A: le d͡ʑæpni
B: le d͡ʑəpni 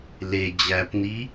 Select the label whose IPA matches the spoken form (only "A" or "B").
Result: A